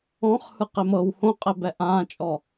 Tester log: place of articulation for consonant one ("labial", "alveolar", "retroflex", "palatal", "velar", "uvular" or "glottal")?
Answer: uvular